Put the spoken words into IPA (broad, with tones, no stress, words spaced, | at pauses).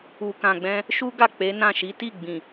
u˨kã˨ɡ͡bɛ̃˧ | ʃu˦ɡa˦˨ k͡pe˨˦nã˦˨ʃi˨˦ ti˦˨ɡ͡bĩ˨